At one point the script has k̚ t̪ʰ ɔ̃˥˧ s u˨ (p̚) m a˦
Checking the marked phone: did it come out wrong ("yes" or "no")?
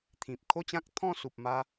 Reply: no